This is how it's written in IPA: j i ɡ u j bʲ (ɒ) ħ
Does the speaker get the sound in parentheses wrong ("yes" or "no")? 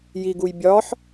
no